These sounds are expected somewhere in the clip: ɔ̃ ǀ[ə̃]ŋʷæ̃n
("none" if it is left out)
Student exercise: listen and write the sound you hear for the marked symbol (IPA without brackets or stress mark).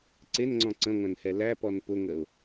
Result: ə̃